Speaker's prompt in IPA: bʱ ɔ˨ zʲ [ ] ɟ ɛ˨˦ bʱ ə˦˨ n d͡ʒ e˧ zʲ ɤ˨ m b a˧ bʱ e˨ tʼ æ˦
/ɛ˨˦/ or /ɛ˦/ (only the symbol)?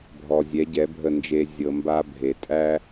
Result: ɛ˨˦